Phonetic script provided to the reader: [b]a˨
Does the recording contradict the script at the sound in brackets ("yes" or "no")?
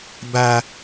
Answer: no